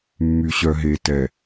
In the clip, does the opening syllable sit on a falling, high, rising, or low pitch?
low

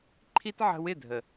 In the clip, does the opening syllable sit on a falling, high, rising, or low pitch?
high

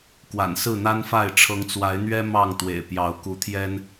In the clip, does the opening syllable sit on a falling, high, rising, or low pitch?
low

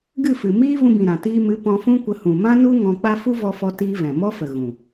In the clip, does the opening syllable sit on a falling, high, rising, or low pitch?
falling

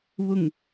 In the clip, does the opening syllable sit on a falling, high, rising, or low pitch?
low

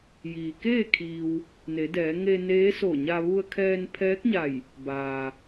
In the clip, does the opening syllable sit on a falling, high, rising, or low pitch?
low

